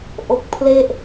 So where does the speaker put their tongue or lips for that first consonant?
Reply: throat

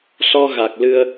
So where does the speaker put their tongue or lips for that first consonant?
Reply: tongue tip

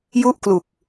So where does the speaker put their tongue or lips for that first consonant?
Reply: palate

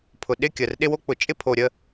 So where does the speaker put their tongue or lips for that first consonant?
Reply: lips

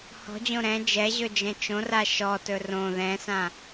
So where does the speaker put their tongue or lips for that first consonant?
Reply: throat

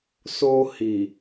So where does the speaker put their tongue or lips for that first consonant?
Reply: tongue tip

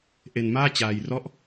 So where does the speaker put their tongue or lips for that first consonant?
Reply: throat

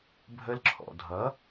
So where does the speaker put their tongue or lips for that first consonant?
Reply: lips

